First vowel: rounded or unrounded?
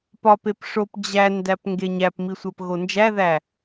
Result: rounded